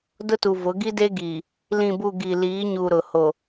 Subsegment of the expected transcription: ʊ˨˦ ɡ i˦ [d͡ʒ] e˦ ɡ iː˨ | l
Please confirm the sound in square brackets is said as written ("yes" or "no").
no